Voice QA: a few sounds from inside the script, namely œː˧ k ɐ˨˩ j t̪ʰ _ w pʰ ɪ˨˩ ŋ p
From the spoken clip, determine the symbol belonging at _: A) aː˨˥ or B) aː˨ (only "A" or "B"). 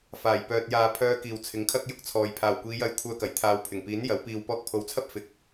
B